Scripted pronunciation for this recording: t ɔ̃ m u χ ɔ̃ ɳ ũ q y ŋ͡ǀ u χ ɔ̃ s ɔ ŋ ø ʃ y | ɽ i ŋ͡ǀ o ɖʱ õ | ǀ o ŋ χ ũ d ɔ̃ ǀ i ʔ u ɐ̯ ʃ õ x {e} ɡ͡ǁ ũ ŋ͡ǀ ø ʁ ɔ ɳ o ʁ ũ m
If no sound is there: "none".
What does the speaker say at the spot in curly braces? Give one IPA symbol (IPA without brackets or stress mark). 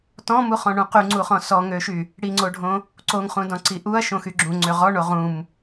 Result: y